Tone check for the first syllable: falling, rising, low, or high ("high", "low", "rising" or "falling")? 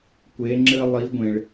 rising